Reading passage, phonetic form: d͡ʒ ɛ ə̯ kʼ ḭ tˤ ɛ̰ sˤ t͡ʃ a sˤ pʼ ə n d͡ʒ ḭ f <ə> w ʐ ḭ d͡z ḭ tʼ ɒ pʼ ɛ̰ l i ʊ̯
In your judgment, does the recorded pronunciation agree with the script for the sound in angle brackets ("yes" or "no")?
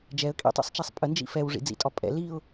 no